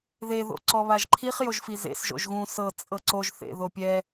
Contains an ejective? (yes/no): yes